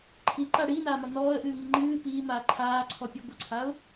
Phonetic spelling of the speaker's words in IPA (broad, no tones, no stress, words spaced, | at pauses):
ǃʰiǃa ɽiːnaːmɒ nɔːə̯ʔɨːŋi ŋ͡ǃɨː piːmaː ǃʰaːǀʰɔpʲa ɡʷəǀʰaʊ̯